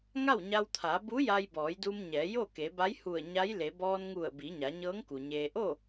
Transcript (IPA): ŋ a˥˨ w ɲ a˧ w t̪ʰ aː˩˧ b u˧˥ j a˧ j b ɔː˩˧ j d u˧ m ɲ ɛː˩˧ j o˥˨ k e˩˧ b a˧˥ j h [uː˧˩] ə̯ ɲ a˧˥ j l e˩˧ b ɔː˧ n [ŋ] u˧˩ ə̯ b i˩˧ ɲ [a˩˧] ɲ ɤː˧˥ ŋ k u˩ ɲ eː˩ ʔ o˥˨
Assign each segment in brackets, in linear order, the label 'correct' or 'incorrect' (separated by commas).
incorrect, correct, correct